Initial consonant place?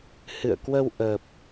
glottal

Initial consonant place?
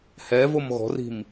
glottal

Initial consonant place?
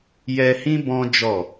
palatal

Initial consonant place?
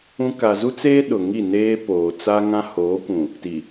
velar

